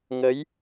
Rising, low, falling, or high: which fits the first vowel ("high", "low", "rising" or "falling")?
rising